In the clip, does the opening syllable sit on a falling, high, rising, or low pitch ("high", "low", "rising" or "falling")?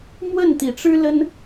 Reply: falling